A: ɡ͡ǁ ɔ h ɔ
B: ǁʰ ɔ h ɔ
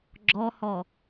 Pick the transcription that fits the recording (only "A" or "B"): A